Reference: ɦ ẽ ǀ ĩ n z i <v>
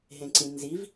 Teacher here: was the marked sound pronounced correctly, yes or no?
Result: yes